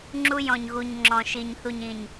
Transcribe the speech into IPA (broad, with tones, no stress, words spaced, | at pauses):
ŋ͡ǁu˦jɔ̃˨ɲɣu˨ɲ ŋ͡ǁɔ̃˨ʃi˨ɲθu˨ɲ ĩ˨ɲ